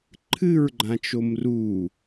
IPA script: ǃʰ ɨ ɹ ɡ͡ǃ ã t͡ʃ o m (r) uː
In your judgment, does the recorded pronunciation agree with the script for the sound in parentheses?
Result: yes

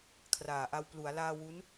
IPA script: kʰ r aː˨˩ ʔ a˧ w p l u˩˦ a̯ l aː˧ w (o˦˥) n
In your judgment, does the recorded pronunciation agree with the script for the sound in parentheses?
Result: no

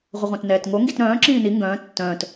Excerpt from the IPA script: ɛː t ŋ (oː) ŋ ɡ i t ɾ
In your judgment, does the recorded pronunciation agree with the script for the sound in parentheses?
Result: no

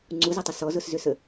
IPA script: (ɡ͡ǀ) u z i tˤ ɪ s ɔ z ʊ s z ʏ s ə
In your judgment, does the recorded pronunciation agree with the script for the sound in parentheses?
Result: no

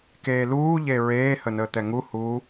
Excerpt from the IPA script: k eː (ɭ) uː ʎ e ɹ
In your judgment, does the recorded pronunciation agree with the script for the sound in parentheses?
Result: no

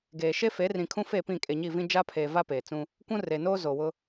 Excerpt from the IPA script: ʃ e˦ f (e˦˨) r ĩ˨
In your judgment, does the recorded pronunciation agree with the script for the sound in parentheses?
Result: no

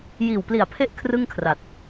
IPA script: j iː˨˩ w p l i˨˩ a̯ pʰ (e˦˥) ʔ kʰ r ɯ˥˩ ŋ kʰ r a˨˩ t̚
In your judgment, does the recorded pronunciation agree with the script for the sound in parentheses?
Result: yes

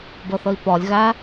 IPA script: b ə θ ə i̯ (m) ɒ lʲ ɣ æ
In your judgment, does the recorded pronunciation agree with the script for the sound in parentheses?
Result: no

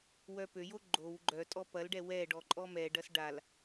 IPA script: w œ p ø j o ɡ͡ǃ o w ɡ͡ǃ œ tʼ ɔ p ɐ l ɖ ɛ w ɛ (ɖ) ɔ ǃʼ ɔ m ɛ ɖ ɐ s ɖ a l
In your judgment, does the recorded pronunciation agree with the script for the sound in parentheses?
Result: yes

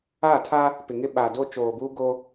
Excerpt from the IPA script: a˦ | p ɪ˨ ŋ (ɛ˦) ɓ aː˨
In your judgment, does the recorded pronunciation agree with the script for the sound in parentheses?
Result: no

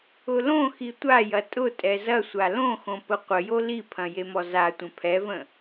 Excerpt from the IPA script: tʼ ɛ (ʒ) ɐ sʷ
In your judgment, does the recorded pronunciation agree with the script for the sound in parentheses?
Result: no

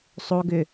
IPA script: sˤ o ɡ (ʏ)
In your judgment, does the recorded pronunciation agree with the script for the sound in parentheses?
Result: yes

